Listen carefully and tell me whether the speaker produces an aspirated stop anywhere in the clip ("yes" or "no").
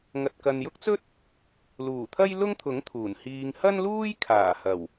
yes